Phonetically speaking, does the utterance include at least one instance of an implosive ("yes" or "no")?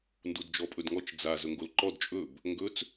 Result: no